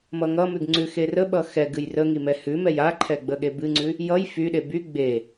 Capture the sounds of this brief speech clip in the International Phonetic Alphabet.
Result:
m ʌ ŋ ʌ m ʉ ɡ ŋ͡ǀ ʉ x e r ə ɓ ʌ x ɛ ɡ ɨ j r ə ŋ i m ɛ h ʉ m ɛ j a ǃʰ ɛ ɡ͡b ə ɠ e b ɨ ŋ͡ǀ ʉ | j ʌ j f y ɗ e b y ɡ͡b e

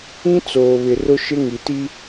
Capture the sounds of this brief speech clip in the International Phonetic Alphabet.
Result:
ĩ˦ t͡s oː˨ β ɪ˨ r ʊ˦ ʃ ɪ˦ ŋ i˨ t i˦

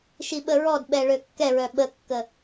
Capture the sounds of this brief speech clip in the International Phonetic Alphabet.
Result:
ʃ i ɓ ə ɹ ɔ d ɓ ɛ ɭ ø kː ɛ ɹ œ ɓ ə kː ə

